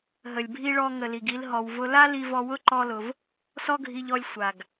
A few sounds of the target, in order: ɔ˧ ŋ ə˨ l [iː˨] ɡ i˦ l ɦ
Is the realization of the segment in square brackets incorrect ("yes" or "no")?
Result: yes